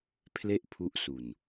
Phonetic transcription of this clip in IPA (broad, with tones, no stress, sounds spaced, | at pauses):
pʰ l e˥˩ ʔ pʰ u˦˥ ʔ s u˨˩ n